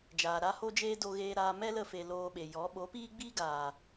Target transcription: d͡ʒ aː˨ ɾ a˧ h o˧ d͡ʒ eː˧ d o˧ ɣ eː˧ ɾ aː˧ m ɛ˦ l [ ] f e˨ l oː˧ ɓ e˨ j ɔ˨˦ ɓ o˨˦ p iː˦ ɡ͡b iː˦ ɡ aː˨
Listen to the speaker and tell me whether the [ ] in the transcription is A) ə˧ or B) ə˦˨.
A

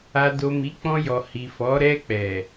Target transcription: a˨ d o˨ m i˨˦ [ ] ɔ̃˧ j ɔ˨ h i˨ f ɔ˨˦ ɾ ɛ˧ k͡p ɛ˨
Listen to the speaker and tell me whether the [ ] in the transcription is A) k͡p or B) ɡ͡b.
A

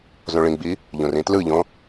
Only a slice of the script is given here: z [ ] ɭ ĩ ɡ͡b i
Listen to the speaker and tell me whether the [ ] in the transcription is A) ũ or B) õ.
B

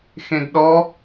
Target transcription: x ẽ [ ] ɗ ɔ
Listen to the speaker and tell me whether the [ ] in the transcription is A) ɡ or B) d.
B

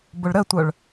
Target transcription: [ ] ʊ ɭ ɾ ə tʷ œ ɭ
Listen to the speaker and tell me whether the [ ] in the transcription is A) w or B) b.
B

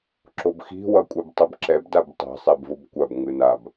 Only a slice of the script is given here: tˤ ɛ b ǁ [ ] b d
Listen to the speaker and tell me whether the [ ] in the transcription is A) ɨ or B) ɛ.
B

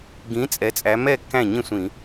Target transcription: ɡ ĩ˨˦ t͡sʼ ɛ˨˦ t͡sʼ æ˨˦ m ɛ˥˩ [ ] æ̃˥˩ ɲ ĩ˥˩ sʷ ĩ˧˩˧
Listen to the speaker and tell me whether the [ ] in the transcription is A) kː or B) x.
A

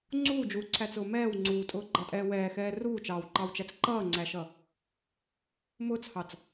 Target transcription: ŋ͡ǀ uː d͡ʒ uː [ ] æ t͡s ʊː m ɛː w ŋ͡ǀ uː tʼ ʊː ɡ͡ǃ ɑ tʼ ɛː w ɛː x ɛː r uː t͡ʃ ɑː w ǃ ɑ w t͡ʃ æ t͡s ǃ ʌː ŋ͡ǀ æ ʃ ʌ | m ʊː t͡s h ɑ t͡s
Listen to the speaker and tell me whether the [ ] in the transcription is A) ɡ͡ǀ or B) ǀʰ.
B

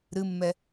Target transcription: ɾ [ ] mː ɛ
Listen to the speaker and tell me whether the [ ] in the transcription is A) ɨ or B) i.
A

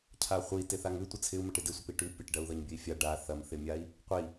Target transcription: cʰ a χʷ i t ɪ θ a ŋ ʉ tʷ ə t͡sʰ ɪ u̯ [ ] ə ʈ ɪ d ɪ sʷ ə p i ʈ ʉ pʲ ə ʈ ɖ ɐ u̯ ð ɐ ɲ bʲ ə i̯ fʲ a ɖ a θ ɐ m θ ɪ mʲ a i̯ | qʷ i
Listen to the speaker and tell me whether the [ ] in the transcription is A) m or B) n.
A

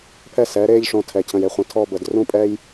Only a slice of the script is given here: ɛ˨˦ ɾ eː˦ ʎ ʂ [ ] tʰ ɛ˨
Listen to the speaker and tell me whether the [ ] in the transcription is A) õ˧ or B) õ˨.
A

